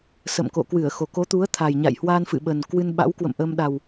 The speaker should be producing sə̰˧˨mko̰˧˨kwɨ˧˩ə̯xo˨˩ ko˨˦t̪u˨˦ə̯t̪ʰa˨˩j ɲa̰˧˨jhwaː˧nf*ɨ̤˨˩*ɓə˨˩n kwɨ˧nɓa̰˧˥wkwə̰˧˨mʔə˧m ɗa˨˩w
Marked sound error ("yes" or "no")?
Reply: yes